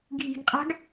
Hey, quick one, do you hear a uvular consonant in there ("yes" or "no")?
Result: yes